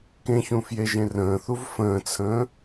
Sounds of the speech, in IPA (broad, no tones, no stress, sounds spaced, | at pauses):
k ẽ ç ũ f j e ʒ ẽ r ə̃ː θ u v f ə̃ː t͡sʰ ə̃ː